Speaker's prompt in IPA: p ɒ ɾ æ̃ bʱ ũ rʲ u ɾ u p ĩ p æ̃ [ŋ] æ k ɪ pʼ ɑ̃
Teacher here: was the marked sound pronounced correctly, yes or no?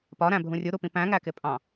yes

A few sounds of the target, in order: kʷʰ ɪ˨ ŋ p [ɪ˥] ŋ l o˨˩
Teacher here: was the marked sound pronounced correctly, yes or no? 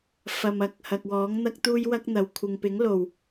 no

